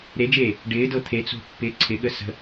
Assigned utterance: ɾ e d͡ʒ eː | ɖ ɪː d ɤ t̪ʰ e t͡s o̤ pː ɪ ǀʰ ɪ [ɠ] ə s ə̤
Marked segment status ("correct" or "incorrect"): correct